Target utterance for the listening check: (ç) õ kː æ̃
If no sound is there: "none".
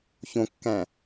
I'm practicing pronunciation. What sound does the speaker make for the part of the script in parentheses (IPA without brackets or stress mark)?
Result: ç